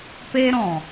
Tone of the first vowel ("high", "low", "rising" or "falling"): high